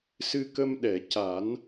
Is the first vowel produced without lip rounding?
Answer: yes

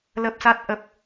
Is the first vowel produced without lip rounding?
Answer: yes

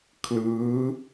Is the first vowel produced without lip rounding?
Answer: yes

